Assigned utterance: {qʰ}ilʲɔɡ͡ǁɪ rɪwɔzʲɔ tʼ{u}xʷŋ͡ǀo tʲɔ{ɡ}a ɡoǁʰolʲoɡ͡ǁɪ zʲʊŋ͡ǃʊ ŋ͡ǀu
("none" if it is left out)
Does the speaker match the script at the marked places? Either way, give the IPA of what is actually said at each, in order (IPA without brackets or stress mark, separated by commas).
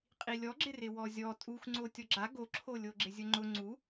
qʼ, u, ɡ͡ǁ